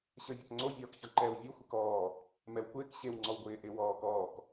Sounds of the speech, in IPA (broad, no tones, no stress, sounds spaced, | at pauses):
ɕ ə˞ vʲ ɒ k ŋ͡ǀ o vʲ ɒː k ç ɒ ǃ ɛː w vʲ o xʷ ɪ k ɔː | m ɛ w kʷ ɪː k ɕ e w ŋ͡ǀ ɔ w ɡʷ ɪː ʔ ɪ w ɔː k ɔː k